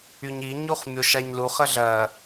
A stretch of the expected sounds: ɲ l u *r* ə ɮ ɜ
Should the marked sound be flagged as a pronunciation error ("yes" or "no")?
yes